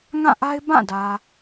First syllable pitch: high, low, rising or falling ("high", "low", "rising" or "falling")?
falling